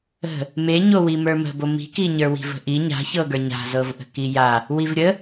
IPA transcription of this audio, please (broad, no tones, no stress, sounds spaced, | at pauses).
ə̤ | m e ɲ o w i m ə˞ m ə̤ b o m i̤ k i ɲ ə˞ w i̤ v ə̤ ʔ i ɲ a̤ ç ɤ ɡ ə˞ ɲ a̤ z ɤ v ʔ ə̤ k i j a | w i v ɾʲ ə